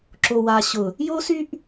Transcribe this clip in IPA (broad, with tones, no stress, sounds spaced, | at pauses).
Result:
ǁ o˨ w a˨ ɕ ʊ˨ | j o˦ s y˦ ʔ